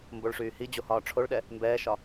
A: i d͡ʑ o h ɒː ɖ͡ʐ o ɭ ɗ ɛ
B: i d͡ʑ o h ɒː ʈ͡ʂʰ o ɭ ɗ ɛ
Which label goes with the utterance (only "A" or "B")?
B